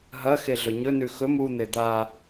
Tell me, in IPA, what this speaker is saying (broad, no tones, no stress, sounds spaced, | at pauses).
ɦ ɐ x e ɮ ɵ ɲ ɵ n ʉ x ɵ m u n̪ e d̪ a